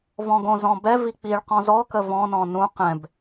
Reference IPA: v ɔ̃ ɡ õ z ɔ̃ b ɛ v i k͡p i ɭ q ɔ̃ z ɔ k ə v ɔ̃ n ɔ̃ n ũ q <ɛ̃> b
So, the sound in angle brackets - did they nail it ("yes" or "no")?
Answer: yes